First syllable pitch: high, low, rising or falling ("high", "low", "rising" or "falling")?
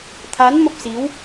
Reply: rising